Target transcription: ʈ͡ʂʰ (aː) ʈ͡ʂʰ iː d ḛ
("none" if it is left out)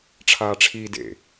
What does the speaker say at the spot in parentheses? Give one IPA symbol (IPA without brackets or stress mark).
aː